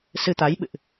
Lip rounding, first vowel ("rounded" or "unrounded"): unrounded